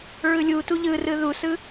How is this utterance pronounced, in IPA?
ɹ ɯ lʲ u t u ʎ ɯ r ɯ ð u s ɯ

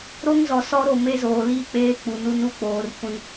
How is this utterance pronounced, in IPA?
ɾ o˦ ŋ z ɔ˨ s ɔ˦ ɾ o˦˨ m e˦ z oː˨ l iː˦ k͡p eː˦ k͡p u˨ n u˦ n u˦ k͡p oː˨ r kʷ ĩ˦

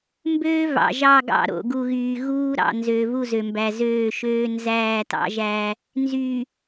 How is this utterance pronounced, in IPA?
m b øː˦ v ɑ̰˨ ʒ ɑ˦˨ ɡ ɑ̰˦˨ ɾ o̰˨ ɡ u˨ ɣ yː˨ ɣ uː˦ ɾ ɑ̰˨ n z øː˨ v u˦˨ z ø˨ m b æ˨ z øː˦˨ ʃ øː˦ n z æː˦˨ t ɑ̰˦ ʒ æː˦ | n z yː˨

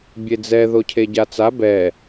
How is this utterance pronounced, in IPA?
bʲ e d͡z ɛ ð o cʰ e ɟ a t͡s a b ɛ

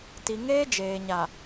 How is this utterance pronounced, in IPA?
t i˨ ŋ eː˦ d͡ʒ eː˨ ɲ a˨

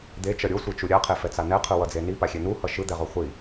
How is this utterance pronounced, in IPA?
d̪ e t͡ʃ ʌ ɾʲ o sʷ i t͡ʃ u ɾʲ a qʰ e f ɛ t͡s a n ɛ qʰ ɯ w ʌ d͡z e n i p a xʲ e n u h ʌ ʃ ɯ d̪ ɛ ʁ o χʷ i

